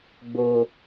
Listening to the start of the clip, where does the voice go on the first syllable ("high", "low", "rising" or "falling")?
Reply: high